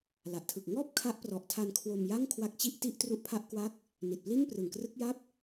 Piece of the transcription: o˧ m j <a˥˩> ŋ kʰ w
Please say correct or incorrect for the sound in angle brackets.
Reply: correct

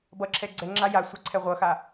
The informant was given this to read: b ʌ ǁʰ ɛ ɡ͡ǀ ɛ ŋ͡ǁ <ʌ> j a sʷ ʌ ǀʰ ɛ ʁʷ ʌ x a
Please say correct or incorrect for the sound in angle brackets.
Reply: incorrect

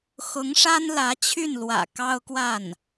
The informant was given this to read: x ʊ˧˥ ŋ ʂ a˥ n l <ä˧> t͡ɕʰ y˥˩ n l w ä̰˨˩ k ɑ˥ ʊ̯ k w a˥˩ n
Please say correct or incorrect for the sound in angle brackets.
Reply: incorrect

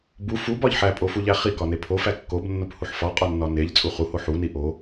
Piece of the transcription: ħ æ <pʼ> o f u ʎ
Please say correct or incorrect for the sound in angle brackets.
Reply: correct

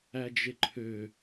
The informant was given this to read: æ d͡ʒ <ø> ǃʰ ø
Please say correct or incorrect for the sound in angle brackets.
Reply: incorrect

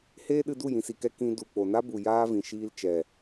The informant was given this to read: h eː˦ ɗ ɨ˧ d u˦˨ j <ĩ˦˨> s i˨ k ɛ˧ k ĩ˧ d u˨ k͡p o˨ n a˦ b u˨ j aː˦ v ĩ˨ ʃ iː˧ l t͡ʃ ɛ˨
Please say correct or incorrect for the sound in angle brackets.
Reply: incorrect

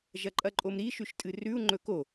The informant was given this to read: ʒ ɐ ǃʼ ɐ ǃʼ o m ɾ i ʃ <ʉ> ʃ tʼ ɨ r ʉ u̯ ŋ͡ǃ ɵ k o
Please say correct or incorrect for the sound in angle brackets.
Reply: correct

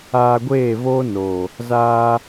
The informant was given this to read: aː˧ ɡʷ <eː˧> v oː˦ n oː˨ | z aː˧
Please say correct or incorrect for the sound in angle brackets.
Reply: incorrect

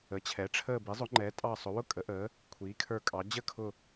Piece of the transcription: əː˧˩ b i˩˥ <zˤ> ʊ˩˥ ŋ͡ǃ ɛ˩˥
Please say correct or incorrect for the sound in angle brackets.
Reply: correct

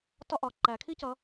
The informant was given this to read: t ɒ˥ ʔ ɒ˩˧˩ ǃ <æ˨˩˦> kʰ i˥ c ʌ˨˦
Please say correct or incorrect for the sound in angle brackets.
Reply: correct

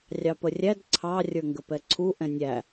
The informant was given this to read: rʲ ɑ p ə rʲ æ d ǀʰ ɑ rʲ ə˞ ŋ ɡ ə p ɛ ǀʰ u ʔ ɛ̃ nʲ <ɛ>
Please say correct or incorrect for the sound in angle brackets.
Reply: incorrect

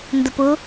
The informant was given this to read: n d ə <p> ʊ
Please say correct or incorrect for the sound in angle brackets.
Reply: correct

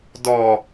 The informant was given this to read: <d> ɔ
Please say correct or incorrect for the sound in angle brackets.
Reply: correct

